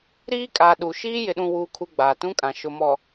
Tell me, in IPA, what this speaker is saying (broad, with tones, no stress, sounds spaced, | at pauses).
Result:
ɾ iː˦ kʼ a˨ ɗ u˨ ʃ iː˦ j ɪ˨ ɗ ũ˨ w uː˨ kʰ u˨ ɡ͡b aː˨ t ũ˦ kʼ ã˨ ʃ ʊ˨ m ɔ˨